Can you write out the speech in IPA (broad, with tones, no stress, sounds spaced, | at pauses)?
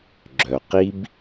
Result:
ɡ͡ǁ œ˩ q i˧ b